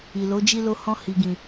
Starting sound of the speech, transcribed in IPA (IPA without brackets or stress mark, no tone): i